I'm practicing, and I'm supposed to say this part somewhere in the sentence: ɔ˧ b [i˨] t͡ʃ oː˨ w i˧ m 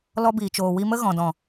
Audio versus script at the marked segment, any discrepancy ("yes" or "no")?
yes